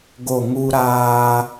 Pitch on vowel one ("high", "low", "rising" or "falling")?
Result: falling